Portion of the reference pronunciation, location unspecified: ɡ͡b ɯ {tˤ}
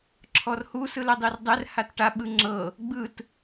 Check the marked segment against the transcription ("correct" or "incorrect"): incorrect